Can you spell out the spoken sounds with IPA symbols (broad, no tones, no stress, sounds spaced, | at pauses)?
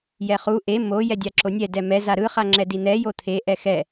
j ɛ χ u ʔ e m o j ɛ dʲ a ǁ o nʲ ɛ d ɛ m ɛ z a ɾ ɯ χ a ŋ͡ǁ ɛ d i n̪ ɛ j o t̪ʰ e ʔ ɛ x ɛ